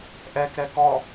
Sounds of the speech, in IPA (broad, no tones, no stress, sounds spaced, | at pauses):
ʔ ɛ k ɾ ɛ k ɔ